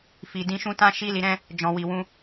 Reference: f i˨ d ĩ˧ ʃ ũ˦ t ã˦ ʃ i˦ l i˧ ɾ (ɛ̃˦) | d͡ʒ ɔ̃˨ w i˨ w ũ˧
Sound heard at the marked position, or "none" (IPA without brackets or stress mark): ɛ̃˦